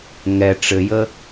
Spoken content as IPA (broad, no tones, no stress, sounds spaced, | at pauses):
ŋ ɛ ʈ͡ʂ ɘ j ə